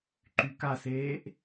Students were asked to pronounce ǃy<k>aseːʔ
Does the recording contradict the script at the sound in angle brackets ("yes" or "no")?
no